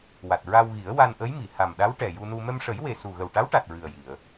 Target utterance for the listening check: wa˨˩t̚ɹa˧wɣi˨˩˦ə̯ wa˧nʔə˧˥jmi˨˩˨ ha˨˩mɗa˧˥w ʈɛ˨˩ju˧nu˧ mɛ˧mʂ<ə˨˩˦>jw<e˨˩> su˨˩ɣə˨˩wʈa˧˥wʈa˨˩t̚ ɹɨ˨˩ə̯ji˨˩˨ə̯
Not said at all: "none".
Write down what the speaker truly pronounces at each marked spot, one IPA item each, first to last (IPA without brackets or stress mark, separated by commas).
ə˨˩˦, e˨˩